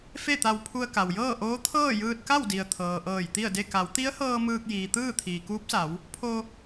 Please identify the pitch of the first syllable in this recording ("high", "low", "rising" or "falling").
falling